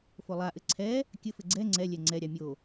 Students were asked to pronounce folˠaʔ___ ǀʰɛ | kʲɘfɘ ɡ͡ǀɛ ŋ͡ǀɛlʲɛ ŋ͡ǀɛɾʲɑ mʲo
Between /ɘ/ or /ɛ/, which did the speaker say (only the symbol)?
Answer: ɘ